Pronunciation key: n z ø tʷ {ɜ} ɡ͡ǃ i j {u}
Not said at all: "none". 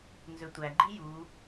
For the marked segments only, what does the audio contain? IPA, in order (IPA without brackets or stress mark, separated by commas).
æ, u